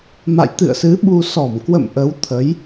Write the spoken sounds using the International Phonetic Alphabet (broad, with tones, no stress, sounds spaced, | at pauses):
m a̰˧˨ j t̪ ɨ̰˧˨ ə̯ s ɨ˨˦ ɓ u˧ s ɔ˧˩ m k w ə̰˧˨ m ʔ ə˨˦ w t̪ʰ ə˨˦ j